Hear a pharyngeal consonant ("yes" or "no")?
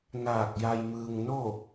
no